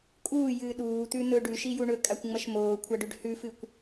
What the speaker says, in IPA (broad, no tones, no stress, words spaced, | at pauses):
kʼuːjɨː ɗuːt̪ʉn̪ɵ ɖʉʃiju ɳɵkʼakʷŋ͡mɐʃ moːkʷʰaɖʉɖ hʉfɨkʷ